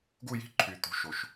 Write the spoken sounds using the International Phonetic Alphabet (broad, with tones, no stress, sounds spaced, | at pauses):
ɡ u˥˧ j i̤˥˧ ǃʰ y˨ t̪ ṳ˩˥ ʃ o˨ ʃ